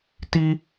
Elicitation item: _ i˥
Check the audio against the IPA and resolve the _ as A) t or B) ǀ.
A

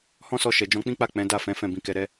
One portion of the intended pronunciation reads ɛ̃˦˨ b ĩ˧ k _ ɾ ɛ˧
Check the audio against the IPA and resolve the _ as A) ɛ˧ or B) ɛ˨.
A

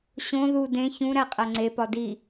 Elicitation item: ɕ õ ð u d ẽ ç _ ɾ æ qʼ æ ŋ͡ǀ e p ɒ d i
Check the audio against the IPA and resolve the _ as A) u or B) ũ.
B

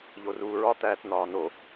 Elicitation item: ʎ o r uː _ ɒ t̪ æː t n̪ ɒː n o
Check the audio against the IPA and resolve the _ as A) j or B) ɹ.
B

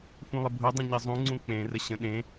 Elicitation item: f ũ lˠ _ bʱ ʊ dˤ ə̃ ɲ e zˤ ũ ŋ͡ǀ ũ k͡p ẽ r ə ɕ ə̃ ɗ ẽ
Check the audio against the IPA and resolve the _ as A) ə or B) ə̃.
A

